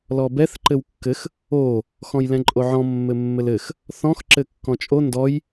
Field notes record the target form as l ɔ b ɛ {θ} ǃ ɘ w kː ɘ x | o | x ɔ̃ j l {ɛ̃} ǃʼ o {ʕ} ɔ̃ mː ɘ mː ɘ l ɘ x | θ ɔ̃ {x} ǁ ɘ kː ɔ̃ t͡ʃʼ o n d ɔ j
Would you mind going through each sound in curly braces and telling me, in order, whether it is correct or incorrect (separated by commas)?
correct, correct, correct, correct